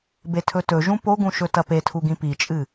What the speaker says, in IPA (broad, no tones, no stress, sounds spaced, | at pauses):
b e tʰ ɵ t ɵ ʒ ũ p o ɡ ũ ʃ ɵ t ɐ p e tʰ u ɡ ĩ p i t͡ʃʼ ɨ